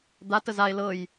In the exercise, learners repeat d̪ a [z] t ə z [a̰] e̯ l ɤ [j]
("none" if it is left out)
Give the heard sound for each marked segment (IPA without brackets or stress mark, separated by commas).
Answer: none, a, j